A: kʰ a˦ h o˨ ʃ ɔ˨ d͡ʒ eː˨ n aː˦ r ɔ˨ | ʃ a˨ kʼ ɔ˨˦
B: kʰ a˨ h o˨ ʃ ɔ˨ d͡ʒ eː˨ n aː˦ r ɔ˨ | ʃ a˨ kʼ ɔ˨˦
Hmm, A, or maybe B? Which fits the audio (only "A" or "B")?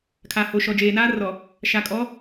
B